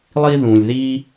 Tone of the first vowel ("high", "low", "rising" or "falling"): high